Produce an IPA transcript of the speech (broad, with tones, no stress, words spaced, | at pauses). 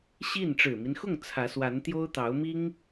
ɕi˥˩n ʈ͡ʂɻ̩˨˩mi˦nxʊ˥˩ŋ t͡sʰä˧˥swa˧˥n t̪jo˥ʊ̯t̪ɑ˧˥ʊ̯mi˥ŋ